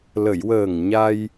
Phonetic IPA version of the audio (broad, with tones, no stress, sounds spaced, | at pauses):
l ə˨˩˨ j w əː˨˩ ŋ ɲ a˧ j